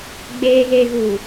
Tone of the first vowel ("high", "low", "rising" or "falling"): low